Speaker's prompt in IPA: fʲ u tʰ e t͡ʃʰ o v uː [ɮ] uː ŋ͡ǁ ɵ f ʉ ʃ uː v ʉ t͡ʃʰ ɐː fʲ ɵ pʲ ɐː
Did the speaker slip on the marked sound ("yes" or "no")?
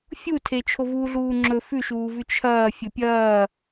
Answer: no